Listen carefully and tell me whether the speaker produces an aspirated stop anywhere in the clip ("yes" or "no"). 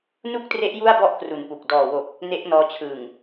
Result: yes